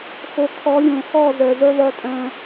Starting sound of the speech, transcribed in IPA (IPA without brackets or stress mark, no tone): x